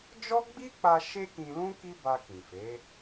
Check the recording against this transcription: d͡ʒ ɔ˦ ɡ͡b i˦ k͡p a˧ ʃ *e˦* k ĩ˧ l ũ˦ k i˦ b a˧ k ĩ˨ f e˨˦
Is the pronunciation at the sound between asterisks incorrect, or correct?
correct